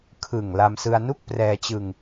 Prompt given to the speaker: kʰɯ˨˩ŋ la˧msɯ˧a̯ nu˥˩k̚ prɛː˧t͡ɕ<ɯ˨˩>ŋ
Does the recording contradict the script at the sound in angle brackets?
yes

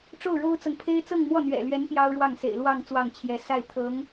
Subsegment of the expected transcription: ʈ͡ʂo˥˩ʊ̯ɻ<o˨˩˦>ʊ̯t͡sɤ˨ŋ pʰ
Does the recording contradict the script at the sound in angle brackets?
yes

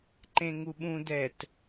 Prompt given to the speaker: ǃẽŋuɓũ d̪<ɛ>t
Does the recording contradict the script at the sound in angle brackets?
no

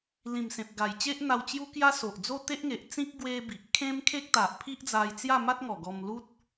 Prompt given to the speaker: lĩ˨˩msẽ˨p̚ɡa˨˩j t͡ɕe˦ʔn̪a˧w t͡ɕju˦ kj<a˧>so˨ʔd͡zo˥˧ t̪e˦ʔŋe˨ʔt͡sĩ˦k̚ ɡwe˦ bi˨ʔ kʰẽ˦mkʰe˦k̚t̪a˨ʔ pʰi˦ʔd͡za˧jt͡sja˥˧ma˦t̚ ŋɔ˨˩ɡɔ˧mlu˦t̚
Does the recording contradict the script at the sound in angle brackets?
yes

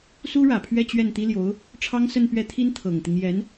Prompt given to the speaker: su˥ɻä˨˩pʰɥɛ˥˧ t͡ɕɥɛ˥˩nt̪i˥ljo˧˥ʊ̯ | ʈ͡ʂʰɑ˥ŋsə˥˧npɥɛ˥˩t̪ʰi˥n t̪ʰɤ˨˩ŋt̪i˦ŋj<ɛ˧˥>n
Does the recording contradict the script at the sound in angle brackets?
no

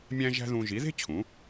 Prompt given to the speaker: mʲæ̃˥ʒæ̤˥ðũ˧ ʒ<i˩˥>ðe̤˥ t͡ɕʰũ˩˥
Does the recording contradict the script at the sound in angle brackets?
no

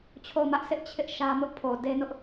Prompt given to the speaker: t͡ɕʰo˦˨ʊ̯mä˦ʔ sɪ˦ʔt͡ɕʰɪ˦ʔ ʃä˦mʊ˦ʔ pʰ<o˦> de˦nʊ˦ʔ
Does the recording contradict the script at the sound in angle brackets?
yes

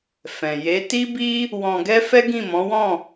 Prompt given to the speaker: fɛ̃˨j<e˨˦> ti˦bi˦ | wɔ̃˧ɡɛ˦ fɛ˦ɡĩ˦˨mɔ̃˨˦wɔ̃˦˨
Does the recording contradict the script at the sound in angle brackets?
no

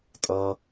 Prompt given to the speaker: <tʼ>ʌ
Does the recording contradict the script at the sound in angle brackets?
no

